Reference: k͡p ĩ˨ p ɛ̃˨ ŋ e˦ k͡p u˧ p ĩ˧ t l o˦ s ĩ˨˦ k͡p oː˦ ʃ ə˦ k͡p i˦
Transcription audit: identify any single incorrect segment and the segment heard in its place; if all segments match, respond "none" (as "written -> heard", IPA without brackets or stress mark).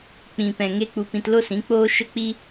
none